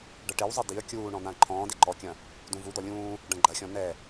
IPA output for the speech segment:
ɖ ɐ ʈ e w zˤ i d i ə̯ kʲ uː ɳ ɔ̃ n̪ ã ə̯ ǃʰ ɔ̃ː d e ǃ ɔ kʲ ɐ̃ | d ũ v u d̪ ɔ lʲ ũː | ɖ ɐ̃ ɡ͡ǃ ɐ xʲ ɔ̃ n̪ ɛ

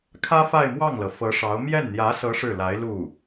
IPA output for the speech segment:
kʰ ä˥ f a˥˧ ɪ̯ m w ɑ˥˩ ŋ l ɤ˩ f ɤ˧˥ ʂ ɑ˧˥ ʊ̯ m j ɛ˥˩ n n̪ j ä˧˥ s ɤ˧˥ ʂ ɻ̩˥˩ l a˧˥ ɪ̯ l u˥˩

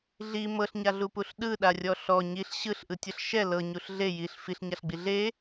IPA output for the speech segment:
ɮ i m ɤ ɬ ɲ a ɮ u p u ɬ ɗ ɯ ɗ a rʲ ɔ ɬ ɔ ɲ i ɬ ɕ ɯ ɬ ʔ ɯ tʲ ɤ ɬ ʃ ɛ l ɤ ɲ u ɬ ɮ e j i ɬ f i ɬ ɲ a ɬ ɡ͡b i ɮ e

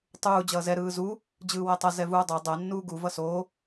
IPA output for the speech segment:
tˤ uː d͡ʑ ʌː z ɛ ɾ ɯː z u | d͡ʑ ɯː w ɛ tˤ ʌ z ɛ v uː dˤ o dˤ ɛ nː uː ɡ u v ʌ s oː

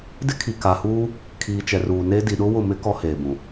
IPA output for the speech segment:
d ɪ˦ kʰ i˨ k a˨ h uː˦ | kʰ iː˨ t͡ʃ ɛ˨ r uː˨ n e˦ d i˨ ɗ ʊ˦ w ʊ˦˨ m ɪ˦ k ɔ˦ h eː˨ b ũ˨

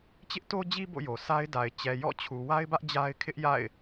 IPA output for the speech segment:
t͡ɕ ɪ˦ ʔ t o˦ d͡ʑ i˦ b o̰˦˨ j o˨ sʰ a˦ ɪ̯ d a˨ ɪ̯ t͡ɕ ɛ˨ j ɔ̰˦˨ t͡ɕʰ u˨ w a˦ ɪ̯ b ä˦ ʔ d͡ʑ a˦ ɪ̯ kʰ ɪ˦ ʔ j a̰˦˨ ɪ̯

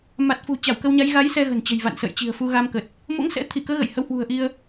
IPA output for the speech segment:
m a˨˩ t̚ f ṳ˨˩ t͡ɕ a˧˩ w k ə˧ w ɲ a˨˦ j ɣ a˨˦ j s ɛ˧ ɣ ə̤˨˩ n t͡ɕ ə̤˨˩ j v a̰˧˨ n s ə̰ː˧˨ j t͡ɕ i̤˨˩ ə̯ f u˧ ɣ a˧ m k ə˨˩ t̚ | m o̰˧˥ ŋ s ɛ̰˧˥ t̪ʰ i˧˩ k əː˨˦ ɣ ə̰˧˨ j h ə˨˦ w h w ṳ˨˩ ə̯ ʔ i˧ ə̯

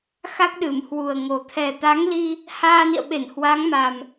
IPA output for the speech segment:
x a˦˥ k̚ ɗ ɨ˧˩ m h w u˨˩ ə̯ ŋ o˨˩ t̪ʰ ɛ˨˩ t̪ a˨˦ ŋ l i˧ | h aː˧ n ḭ˧˨ ə̯ ɓ e˧˩ n h w a˨˦ ŋ m a˨˩ m

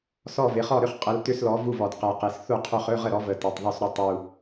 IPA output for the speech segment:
s ɔ˥˩ v ɪ˩˥ χ ɔ˥˩ ɾ ʏ˥˩ χ qʼ ə˩˥ l t ʏ˧˥˧ s l ɔ˩˥ v u˥˩ v ɔ˨˩ d q ɛ˨˩ q e˨˩ s θ u˥˩ qʰ ʏ˥˩ χ ɵ˧˥˧ ʁ ə˥˩ ɾ ɔ˩˥ v ə˨˩ t ɛ˨˩ tˤ ðˤ ɵ˥˩ s ɾ ɵ˥˩ tˤ u˨˩

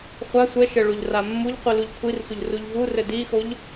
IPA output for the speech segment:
χʷ a sʷ ɛ ʃ ɘ ɭ u ʎ r a mː u ʎ qʷ i l u ʎ kʷʰ i r sʷ ə ʎ r u ʎ v u r ɘ d i x o ʎ

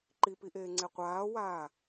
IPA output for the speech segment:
ǃ i p i ʔ eː ŋ͡ǀ e qʷ aː w aː

